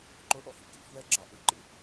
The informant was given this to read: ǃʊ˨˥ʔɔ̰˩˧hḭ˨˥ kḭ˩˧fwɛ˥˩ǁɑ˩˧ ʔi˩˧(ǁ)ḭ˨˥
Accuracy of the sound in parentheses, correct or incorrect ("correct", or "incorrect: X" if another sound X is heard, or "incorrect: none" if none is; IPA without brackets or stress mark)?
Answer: incorrect: ǃ